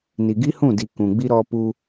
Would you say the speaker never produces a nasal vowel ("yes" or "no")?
no